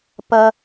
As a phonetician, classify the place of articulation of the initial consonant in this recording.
labial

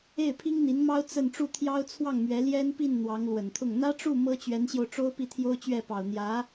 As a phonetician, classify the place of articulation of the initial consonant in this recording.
labial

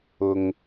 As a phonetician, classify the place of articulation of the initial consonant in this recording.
velar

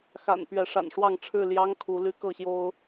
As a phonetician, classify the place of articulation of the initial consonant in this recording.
velar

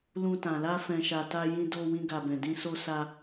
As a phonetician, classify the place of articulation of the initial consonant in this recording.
alveolar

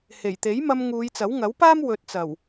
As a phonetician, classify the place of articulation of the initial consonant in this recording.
glottal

